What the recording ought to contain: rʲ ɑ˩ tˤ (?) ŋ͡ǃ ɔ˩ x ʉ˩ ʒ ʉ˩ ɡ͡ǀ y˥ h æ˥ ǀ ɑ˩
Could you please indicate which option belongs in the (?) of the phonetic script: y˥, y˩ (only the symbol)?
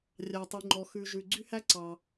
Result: y˩